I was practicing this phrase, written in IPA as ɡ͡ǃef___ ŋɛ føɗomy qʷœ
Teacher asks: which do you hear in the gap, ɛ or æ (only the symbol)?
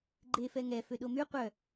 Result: ɛ